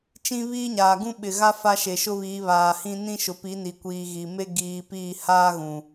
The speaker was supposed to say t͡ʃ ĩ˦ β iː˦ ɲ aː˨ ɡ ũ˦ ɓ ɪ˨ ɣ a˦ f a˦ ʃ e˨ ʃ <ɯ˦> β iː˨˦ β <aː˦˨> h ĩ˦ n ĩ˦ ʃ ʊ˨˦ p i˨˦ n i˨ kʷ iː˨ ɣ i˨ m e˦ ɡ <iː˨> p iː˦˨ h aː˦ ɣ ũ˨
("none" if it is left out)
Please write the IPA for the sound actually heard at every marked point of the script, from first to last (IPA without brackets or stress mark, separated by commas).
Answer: ʊ˦, aː˨, iː˨